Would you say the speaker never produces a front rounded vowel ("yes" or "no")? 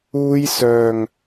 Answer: no